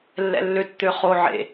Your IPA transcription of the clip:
lːɛ̰lːøt t̪øχo ʕḛ

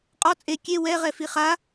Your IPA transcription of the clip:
qʼɔ t͡sʼe kʲe wɛ ʁɛfiχa

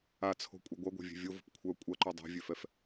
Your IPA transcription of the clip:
at͡sʰo̤kʷʼɐ ɡʷɐɡʷa̤vʲe̤ vʲovo̤p kʷʰœ kʷʼɐǃø dˤɛ̤vʲøfɛf

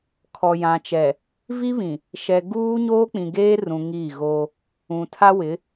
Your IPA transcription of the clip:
kʰɔ˨jã˨t͡ʃɛ˨ | vi˦βĩ˨ | ʃɛ˨ ɡuː˦ ɲoː˦k͡pĩ˨ɡeː˦rũ˨ ŋi˦˨ɣo˦ | ũ˨tʰa˦wɪ˨˦

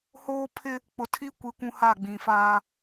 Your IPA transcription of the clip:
hoː˦pʰɪ˦ | k͡pʊ˨tʰi˦kʷi˨ kʷũ˦ha˦˨ɡ͡bĩ˨faː˦

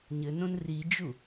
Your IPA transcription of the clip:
ɲɘnõn rid͡ʒu

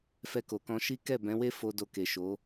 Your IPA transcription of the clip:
fɛ˧ko˨kɔ̃˧ ʃi˦ kɛ˦˨bɛ̃˨˦we˦ fo˧do˧ke˨ʃo˨˦

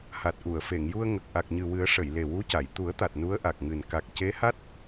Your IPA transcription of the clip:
ha˨˩t̚ʔu˨˩˨ə̯ fe˨˩˨ŋju˧ə̯ŋə˨˩k̚ ʔa˨˩k̚ɲɨ˨˩wɨ˨˩˦ə̯ ʂə˨˩˨j le˨˩wu˧˥ca˨˩˨j t̪u˨˩˦ə̯t̪a˨˩t̚ nu˧˥ə̯ʔa˨˩k̚ŋɨ˨˩n ka˨˩k̚ce˧˥ha˦˥t̚

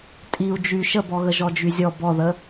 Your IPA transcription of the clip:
tʼiu̯ d͡ʒy ʃəbɔɣə ʒɔd͡ʒyzʲɔ bɔðə

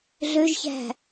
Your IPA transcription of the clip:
ɮøʒçæ̤

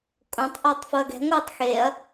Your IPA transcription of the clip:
kʼõtˤ ʔoːtˤfoɐ̯ɡɛ̤ ŋʷɯːtˤxeɐ̯

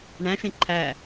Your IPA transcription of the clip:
ɳæ̃ʃẽ ǃʰæ

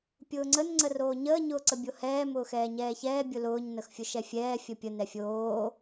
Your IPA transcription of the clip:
pʲʊːŋ͡ǀən ŋ͡ǀəroːɲəː ɲʊːǀəbʲohɛː mʊːxɛːɲɛːçɛː bʲʊlʊːɲ nəxfʲʊʃɛfʲɛː fʲəpʲə nɛfʲoː

